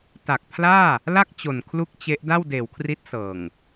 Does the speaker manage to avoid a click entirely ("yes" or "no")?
yes